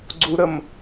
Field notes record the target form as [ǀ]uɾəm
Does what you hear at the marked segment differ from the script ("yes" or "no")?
yes